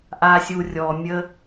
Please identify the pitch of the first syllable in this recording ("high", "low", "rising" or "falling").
low